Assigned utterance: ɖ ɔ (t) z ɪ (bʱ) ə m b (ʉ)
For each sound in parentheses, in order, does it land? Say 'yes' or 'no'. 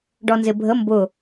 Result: no, yes, no

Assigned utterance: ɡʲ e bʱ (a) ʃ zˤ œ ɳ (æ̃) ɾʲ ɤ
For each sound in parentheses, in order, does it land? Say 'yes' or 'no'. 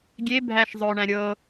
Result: no, yes

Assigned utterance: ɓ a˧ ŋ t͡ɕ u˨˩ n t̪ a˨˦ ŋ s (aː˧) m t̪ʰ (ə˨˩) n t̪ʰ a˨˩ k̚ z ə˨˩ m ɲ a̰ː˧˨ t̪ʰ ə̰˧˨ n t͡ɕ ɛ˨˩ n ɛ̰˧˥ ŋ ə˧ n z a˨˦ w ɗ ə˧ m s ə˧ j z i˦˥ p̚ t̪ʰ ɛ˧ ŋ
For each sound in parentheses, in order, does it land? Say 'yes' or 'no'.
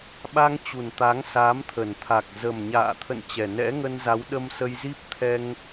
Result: no, yes

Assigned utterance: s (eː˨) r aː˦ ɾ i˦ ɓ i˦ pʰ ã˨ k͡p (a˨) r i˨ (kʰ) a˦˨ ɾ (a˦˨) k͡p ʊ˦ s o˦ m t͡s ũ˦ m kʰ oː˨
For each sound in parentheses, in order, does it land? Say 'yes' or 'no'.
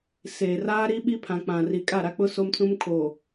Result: yes, no, no, yes

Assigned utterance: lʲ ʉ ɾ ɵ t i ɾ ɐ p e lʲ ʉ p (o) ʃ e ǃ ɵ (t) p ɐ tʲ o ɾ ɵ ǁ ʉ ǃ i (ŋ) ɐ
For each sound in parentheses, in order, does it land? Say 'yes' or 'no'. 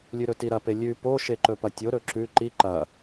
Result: yes, no, no

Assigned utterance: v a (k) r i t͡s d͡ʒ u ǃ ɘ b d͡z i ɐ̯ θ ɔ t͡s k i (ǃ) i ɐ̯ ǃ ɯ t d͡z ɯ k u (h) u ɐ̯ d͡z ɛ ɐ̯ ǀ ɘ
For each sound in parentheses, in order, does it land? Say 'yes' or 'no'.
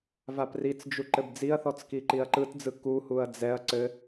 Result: no, yes, yes

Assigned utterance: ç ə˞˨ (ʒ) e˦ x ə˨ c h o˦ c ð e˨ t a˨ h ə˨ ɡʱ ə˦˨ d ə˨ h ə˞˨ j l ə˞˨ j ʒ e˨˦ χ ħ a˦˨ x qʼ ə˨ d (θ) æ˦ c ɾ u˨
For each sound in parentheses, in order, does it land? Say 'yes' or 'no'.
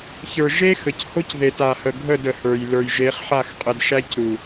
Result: yes, no

